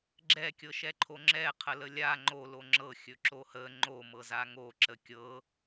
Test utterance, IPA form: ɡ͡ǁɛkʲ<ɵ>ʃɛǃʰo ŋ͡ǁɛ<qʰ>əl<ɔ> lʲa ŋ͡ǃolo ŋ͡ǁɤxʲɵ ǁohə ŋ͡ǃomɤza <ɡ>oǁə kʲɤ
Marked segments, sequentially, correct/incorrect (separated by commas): incorrect, correct, incorrect, incorrect